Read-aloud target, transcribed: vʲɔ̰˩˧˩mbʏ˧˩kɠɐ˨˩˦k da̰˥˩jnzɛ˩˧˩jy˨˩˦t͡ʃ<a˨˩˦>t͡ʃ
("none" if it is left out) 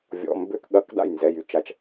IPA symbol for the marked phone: a˨˩˦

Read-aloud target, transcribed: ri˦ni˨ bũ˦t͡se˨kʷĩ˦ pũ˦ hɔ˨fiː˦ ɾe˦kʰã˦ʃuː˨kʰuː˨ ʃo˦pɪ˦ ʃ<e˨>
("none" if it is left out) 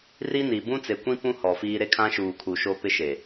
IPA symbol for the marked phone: e˨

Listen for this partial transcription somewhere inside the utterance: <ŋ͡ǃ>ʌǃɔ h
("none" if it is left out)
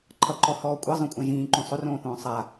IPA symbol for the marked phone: ǃʰ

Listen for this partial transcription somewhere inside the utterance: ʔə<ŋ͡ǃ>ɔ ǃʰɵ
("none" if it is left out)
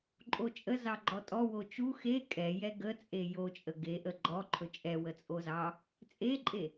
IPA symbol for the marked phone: ɡ͡ǃ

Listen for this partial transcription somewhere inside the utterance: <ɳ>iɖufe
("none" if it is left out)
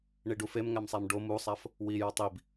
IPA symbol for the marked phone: ɳ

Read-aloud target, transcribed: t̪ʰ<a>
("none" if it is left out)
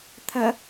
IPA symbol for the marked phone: ɐ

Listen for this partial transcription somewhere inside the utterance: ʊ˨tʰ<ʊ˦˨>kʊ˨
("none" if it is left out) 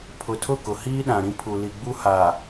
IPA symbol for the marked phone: ʊ˦˨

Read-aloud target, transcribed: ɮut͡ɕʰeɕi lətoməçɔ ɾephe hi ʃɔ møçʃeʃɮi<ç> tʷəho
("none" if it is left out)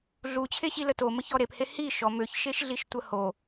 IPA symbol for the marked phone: ʃ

